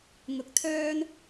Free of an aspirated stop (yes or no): no